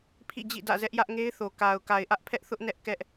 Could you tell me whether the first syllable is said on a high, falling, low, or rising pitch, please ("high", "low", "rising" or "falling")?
falling